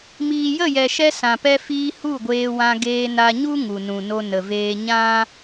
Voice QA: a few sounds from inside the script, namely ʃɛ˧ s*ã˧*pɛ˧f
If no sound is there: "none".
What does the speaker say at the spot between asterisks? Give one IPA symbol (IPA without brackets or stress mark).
ã˨